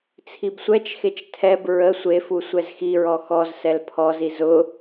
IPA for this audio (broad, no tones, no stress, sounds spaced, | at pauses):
t͡sʰ i b sʷ ɛ t͡ʃ x e t͡ʃ tʰ ɛ b ɹ ə sʷ e f u sʷ ɛ z x i ɹ ɔ x ɔ z s ɛ l pʰ ɔ z i z ʊ